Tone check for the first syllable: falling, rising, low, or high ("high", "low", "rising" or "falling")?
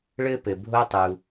high